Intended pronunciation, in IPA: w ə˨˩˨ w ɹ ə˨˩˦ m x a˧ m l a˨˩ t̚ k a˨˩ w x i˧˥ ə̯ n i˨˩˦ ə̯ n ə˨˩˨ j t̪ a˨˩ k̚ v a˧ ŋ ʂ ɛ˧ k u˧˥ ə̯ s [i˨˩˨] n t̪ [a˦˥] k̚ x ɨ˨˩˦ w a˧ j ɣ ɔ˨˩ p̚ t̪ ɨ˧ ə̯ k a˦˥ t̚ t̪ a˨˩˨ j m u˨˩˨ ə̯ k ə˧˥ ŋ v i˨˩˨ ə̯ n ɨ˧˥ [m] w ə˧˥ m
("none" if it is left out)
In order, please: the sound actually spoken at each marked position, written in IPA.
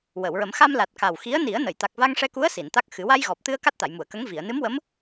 i˨˩˨, a˦˥, m

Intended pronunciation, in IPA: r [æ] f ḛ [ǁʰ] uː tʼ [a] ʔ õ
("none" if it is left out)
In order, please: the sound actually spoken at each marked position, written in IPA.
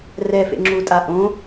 ɛ, ŋ͡ǁ, a

